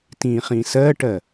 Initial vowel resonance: nasal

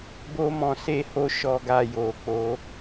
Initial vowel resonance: oral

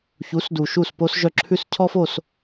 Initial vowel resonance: oral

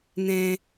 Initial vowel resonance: nasal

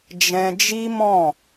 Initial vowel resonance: nasal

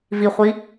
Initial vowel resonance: oral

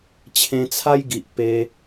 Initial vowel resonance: nasal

